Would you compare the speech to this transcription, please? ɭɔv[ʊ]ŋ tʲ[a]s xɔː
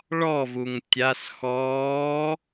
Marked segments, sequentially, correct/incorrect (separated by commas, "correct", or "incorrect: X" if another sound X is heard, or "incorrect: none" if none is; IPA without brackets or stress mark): incorrect: u, correct